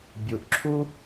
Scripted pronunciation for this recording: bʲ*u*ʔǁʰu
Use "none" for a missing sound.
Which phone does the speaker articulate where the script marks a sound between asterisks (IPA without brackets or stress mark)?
u